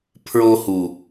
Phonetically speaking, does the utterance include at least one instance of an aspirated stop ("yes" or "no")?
yes